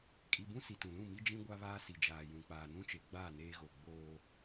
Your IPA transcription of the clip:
kʼi˨bũ˦ si˨tũ˨lũ˦˨mi˦ d͡ʒĩ˦ ɡʷa˦βaː˦si˨ d͡ʒaː˨jũ˨k͡paː˨ nũ˦t͡ʃe˨ ɡ͡baː˦˨ neː˦ɣo˨ ɡ͡boː˦

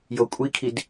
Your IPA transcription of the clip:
jokʷʼikʰid

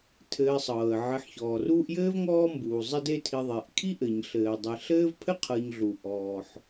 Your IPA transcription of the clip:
tʰɘː˨ sˤɤː˩ə̯ ʕɘ˨ħçɔː˩ ruː˦ʔjɘː˥vŋɔː˦mbuː˩ zˤɘ˦de˦ tʰi˨ðˤe˩ʔkʰi˦ ʔɘ˩ɲɬɘː˩ dˤɛ˨ɬɘː˥vpʰɘ˥ qʰɤ˨ɲɮu˩ ʔɔː˩ħ

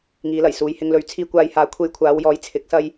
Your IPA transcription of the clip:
ŋiː˨˧lɐ˨˩jsuː˨j hɪ˧ŋ lɵ˨˥ɥt͡sʰiː˧kʷaː˧j haː˨˧kʷʰe˧jkʷʰaː˨˧wjɔː˨˥j t͡sʰɪ˨˥k̚sɐ˥j

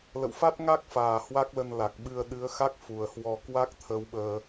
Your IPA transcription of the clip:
lə̰˧˨wfa˦˥t̚ŋa˦˥k̚faː˨˩ hwa˦˥k̚lə˧nla˨˩k̚ɓɨ˧ə̯ ɗɨ˨˦ə̯xa˦˥k̚ fu˨˩ə̯hwɔ˧ kwa˦˥k̚t̪ʰə˨˦wɓəː˧

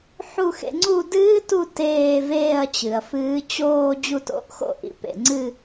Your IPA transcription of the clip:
ħu˦˨xḛ˨˦ ŋ͡ǀu˦˨dɨː˦˥tu˦˨ teː˦˨veː˦˨ɐ̯t͡ɕɨ˩ɐ̯ fɨː˨˦ t͡ɕoː˦˨ d͡ʑu˦˨to̰˨˦ʔxo̰˦˨ ʔḭ˩pḛ˩ŋ͡ǀɨ˦˨

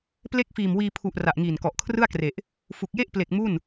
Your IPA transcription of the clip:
ple˥˩k̚fiː˨˩mwiː˧ pʰu˨˩ʔ ra˨˩ʔŋiː˨˩nkɔ˨˩ʔkʰrɯ˥˩a̯ kre˨˩ʔ | fu˨˩k̚je˥˩ʔple˨˩k̚ mu˥˩n

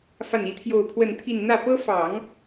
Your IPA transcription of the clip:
fa˥˩ni˥t̪ʰjo˥˧ʊ̯ pʰwə˥˧nt̪ʰi˥˧n n̪ä˥˩pɤ˥fɑ˨˩˦ŋ

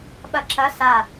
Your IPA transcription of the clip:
ɓɐǁɐ sa

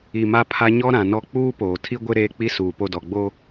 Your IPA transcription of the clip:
i˨ma˦pʰa˦ ɲɔ˦ ɾã˨nɔ˦ k͡puː˦poː˨tʰi˦ɡʷɪ˦ ɾeː˦k͡pi˦suː˨ po˦dɔ˨ɡ͡boː˦

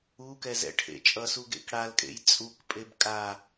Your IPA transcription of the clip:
ukɛz ɛ̰ʈʰḛt͡ʃʼʌsu ɡḛkɽalkʼḛj t͡sʼukpʼeb kʼa

